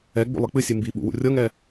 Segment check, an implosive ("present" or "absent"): present